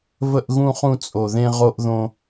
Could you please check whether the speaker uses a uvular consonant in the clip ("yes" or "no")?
yes